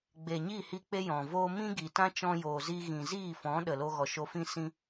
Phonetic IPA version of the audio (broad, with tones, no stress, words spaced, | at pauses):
ɡ͡be˨ɲiː˦˨hi˧ k͡pe˦jɔ̃˨voː˦ mĩ˦ɡi˨tã˦t͡ʃɔ̃˧ joː˨zi˧ ɣĩ˨ziː˦˨fɔ̃˨˦ ɗə˨lo˧ ɣɔ˨ʃo˧fĩ˦ sĩ˦